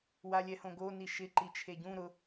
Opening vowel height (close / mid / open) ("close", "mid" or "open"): open